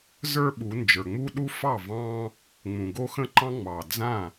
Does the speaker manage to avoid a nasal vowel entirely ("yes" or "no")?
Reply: no